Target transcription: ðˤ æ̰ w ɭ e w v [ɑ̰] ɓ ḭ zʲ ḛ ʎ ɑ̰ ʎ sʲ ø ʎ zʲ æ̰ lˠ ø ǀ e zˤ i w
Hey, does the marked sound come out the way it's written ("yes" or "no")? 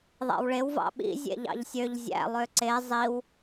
yes